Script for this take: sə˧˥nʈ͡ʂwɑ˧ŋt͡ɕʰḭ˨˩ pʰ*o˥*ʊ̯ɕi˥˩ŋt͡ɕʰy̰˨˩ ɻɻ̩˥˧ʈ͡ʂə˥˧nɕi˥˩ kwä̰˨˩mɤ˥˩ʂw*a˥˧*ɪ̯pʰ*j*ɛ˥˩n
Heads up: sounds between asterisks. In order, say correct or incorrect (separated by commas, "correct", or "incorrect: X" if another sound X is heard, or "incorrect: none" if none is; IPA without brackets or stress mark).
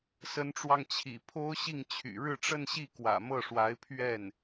correct, incorrect: a˧˥, incorrect: ɥ